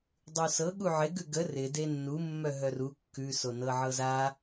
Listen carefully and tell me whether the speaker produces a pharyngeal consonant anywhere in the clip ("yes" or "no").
yes